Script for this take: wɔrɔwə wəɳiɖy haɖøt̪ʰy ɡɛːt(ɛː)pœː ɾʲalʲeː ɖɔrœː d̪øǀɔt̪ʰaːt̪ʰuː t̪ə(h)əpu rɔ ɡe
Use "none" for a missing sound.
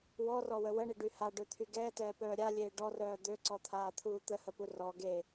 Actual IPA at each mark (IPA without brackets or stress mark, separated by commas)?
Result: ɛː, h